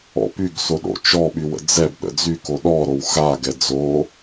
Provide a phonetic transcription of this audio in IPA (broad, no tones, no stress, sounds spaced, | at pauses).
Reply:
ɔ̰ p y ɡ s o ɗ o̰ t͡ʃ ɔ ɓ y w ə̰ d͡z ɛ b ɗ ə̰ d͡z y k o ɗ ɔ ɾ o w x a ɡ ɛ d͡z o